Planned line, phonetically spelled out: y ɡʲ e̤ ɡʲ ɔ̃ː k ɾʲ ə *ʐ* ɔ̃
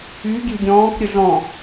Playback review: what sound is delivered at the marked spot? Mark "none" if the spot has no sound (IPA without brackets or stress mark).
ɮ